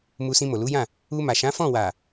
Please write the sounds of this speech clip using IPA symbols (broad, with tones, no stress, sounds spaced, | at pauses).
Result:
m u˧ s ĩ˧ m o˨ l u˨˦ j ã˦˨ | u˧ m a˨ ʃ ã˨˦ f ɔ̃˦˨ w a˨